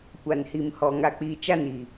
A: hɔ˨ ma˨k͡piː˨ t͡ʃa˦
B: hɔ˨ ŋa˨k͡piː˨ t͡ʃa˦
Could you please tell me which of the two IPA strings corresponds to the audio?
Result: B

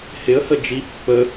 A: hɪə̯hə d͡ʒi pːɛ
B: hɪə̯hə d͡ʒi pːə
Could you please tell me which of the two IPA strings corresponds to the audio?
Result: B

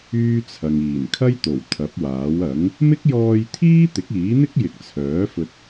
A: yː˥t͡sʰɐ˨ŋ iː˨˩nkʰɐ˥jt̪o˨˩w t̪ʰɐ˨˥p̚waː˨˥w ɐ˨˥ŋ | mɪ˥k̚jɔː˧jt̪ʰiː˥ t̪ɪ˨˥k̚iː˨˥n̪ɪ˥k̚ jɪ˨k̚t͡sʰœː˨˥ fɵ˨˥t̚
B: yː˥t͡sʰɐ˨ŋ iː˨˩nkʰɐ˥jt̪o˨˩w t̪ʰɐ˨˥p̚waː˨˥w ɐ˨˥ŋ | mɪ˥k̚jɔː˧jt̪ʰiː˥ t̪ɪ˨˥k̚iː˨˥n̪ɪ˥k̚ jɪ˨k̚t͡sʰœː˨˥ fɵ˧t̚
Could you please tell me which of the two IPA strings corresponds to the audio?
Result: B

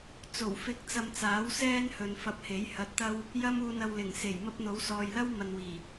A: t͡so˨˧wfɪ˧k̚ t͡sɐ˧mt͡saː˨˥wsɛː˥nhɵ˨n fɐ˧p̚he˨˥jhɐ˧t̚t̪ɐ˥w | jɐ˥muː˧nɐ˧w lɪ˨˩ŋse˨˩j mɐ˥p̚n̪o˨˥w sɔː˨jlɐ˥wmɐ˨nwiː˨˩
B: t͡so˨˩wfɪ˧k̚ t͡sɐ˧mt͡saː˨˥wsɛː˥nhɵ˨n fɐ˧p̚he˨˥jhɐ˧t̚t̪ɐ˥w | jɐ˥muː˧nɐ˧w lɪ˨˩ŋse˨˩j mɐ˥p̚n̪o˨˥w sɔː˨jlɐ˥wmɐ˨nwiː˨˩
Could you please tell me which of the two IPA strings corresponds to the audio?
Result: B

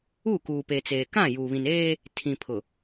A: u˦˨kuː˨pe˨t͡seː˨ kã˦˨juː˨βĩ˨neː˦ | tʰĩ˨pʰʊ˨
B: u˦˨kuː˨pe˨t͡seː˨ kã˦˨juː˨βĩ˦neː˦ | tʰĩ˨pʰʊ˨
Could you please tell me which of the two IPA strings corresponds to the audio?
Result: A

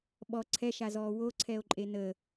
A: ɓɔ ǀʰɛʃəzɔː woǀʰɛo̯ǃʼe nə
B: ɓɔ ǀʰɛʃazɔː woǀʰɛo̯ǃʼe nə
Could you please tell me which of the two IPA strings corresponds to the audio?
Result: B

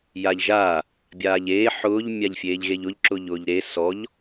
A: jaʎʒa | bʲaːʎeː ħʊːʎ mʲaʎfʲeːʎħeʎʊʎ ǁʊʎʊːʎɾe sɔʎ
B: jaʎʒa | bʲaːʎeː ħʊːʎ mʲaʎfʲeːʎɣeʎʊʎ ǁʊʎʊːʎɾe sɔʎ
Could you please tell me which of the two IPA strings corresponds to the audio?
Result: B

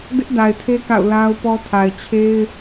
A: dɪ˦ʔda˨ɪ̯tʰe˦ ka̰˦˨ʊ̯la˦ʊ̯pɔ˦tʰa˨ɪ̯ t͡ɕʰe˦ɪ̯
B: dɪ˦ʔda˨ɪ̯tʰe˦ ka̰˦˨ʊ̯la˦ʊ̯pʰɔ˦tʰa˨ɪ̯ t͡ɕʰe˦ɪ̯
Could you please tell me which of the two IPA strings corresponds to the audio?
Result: A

